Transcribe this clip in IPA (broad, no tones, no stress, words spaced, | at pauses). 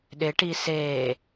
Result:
ɗɪʈi seː